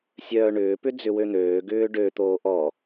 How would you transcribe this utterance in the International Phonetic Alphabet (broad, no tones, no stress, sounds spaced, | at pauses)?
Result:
sʲ œː ɳ ʏː p ʏ d͡z ʏ w ø n̪ øː ɡ ʏː ɖ ø t̪ oː ʔ ɔ